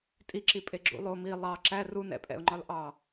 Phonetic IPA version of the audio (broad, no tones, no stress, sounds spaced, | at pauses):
tʼ i ǁ i pʼ e ɡ͡ǁ ṵ lˠ o m i lˠ ɑ ǁ æ r u n ɛ̰ pʼ ɛ̰ ʊ̯ ŋ͡ǃ ɒ l ʔ ɑ